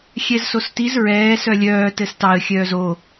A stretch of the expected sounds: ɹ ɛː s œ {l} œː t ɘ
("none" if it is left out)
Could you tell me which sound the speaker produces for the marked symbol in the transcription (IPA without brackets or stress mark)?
lʲ